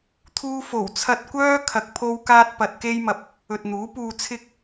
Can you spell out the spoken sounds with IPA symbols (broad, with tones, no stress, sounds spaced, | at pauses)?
t̪ʰ uː˥ f o˨˩ w t͡sʰ ɐ˧ t̚ kʷ œː˥ kʰ ɐ˧ k̚ pʰ o˥ w k aː˥ t̚ p ɐ˧ t̚ k e˥ j m ɐ˧ p̚ | ɵ˨ t̚ n̪ uː˨˥ p uː˧ t͡sʰ ɪ˥ k̚